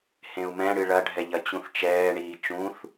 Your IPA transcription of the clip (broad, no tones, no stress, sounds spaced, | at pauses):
h ẽ u̯ m ɛ̃ ɽ ɨ ɭ ɐ ɖʱ ɛ ʎ ɐ t͡ɕ ũ θ t͡ʃ ɛː ɳ iː t͡ʃ ũ θ